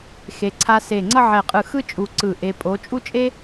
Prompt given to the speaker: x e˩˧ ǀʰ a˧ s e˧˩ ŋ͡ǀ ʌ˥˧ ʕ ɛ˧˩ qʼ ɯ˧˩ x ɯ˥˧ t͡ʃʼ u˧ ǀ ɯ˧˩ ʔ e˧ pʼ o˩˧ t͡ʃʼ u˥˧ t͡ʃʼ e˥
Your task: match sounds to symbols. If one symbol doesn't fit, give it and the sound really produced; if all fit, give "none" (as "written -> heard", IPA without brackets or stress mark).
none